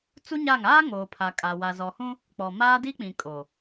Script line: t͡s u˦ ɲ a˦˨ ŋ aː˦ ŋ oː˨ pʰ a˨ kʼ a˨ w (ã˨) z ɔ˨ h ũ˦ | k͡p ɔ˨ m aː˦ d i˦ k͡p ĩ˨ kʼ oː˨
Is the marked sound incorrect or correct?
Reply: incorrect